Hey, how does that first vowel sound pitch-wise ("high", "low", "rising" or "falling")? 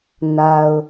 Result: low